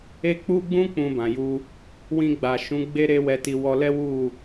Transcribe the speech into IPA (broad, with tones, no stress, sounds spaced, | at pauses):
e˧ k͡p u˧ ɡ͡b ũ˧ k͡p ũ˨ b ã˨ j u˧ | w ĩ˧ ɡ͡b a˨ ʃ ũ˨˦ ɡ͡b e˦ ɾ e˦ w ɛ˧ t i˧ w ɔ˧ l ɛ˦ w u˦˨